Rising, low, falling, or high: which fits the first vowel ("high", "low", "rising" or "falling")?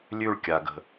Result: falling